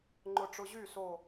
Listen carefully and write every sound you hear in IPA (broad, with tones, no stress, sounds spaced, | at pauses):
ŋ͡ǃ ʊ˧˩ ʈ͡ʂ ʊ˧ ʑ y˥˩ s o˧˩